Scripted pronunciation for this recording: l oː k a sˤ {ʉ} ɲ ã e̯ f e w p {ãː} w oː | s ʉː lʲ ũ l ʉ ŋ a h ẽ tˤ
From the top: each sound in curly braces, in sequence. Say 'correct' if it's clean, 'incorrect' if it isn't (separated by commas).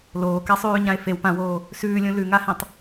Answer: incorrect, incorrect